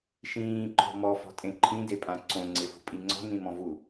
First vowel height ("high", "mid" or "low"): high